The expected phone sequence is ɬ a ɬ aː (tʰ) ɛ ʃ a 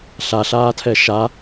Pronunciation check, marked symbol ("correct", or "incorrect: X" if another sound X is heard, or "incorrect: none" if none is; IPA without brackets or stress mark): correct